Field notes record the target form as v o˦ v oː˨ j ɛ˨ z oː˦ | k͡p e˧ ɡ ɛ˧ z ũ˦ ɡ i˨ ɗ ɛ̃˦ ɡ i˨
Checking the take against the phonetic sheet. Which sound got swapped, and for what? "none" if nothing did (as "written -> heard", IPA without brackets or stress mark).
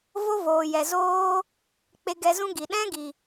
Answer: none